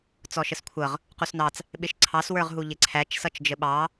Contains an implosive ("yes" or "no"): yes